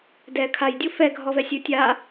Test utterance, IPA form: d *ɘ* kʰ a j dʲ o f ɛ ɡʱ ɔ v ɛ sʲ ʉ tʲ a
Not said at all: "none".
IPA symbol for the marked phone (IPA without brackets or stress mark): ɛ